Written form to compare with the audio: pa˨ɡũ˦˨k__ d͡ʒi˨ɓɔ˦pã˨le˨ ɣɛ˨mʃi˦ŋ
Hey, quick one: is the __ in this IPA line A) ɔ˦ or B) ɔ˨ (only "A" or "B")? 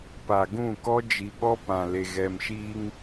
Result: A